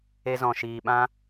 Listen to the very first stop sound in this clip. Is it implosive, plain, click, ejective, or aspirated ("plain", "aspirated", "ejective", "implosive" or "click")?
implosive